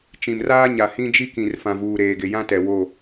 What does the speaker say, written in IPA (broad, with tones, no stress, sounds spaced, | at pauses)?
t͡ʃ ĩ˨ m r aː˦ ɲ a˨ h ĩ˦ d͡ʒ i˦ k ĩ˨ r f ã˨ v uː˨ ɾ eː˨ ɡ ɪ˨ j ã˦ t ɛ˨ w o˦˨